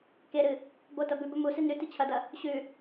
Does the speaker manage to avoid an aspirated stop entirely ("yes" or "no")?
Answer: no